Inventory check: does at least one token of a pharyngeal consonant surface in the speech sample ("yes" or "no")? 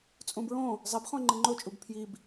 no